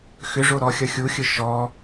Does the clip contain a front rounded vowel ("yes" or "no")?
yes